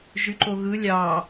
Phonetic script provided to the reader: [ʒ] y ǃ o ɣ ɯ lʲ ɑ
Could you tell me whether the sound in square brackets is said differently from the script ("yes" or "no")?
no